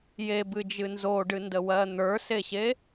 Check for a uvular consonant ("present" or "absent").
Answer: absent